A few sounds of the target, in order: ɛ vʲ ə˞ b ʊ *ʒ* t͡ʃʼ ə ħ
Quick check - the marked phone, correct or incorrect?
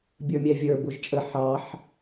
correct